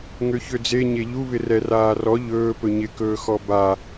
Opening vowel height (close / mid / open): mid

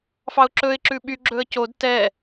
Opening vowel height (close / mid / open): open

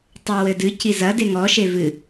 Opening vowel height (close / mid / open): open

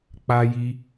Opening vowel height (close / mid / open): open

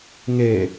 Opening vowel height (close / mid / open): mid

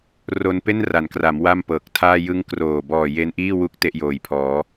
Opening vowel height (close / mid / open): mid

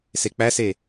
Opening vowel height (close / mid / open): mid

